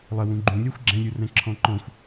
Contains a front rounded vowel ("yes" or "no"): no